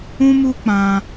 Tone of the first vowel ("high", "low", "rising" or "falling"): high